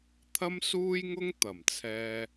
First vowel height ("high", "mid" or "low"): low